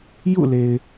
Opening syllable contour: falling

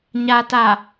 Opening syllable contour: low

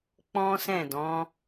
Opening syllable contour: high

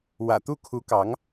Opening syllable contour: low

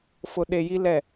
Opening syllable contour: low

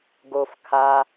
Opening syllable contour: low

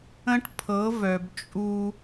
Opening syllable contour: high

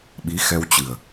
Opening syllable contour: rising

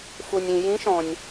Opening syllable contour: low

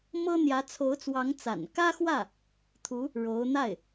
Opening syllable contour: high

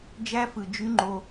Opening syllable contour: high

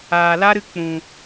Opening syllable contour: low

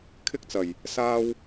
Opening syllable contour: high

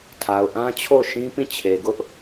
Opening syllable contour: low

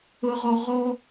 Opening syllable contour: high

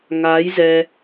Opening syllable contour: rising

